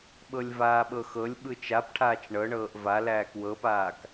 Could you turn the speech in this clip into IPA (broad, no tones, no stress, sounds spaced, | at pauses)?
ɓ ɤ lʲ v aː ɓ ɤ x ɤ lʲ ɓ ɯ t͡ʃ a p ʈʰ aː t͡ʃ ɳ ɤ ɳ ɤː ʔ v a l æː k w ɤ p aː k